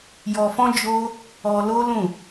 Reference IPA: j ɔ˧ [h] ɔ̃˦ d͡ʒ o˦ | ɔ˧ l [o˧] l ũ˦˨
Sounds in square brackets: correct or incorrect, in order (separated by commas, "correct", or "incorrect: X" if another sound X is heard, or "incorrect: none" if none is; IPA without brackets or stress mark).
incorrect: f, incorrect: o˦